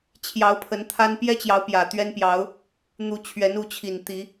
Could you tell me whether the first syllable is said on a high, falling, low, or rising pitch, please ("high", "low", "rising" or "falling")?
rising